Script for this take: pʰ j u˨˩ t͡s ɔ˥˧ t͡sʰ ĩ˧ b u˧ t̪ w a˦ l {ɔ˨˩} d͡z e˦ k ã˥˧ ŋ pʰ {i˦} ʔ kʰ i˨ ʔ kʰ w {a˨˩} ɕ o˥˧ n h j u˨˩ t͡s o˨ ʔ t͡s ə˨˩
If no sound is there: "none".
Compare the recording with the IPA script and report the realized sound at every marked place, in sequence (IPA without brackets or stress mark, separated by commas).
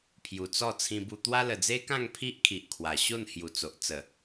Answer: ə˨˩, i˦, a˨˩